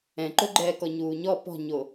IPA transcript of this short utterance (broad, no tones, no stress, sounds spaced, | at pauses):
ɛ̃ ǃ o ɡ͡ǃ ɛː k ɔ ɲ uː ɲ ɔ p ɔ̤ ɲ o